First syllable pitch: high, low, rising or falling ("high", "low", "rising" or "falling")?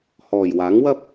low